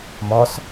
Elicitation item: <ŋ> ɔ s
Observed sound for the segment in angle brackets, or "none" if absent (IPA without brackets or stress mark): m